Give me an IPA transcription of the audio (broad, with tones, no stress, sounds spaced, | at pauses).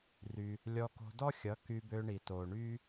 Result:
r y˧ | lʲ ɔ˧ k o̤˧ d ɔ˦ xʲ ʌ˨˦ k y˧ b ø˧ ɳ i˨ t o˨ ɳ y˦